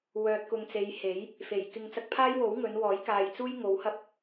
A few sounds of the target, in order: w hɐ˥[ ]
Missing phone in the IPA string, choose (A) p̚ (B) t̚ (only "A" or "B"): A